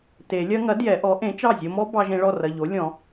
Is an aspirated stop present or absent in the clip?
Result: absent